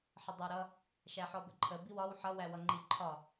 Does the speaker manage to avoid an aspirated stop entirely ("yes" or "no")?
no